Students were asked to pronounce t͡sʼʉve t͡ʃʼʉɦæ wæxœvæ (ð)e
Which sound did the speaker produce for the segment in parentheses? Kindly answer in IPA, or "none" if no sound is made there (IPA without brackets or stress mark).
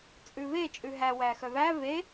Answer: v